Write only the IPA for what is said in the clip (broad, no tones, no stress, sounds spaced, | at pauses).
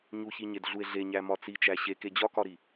ɲ u ç i ɲ e d ɮ u e̯ ɮ e ɲ æ m ɒ t͡s i t͡ʃ æ ɕ e k e d͡ʑ ɒ k ɒ ɾ i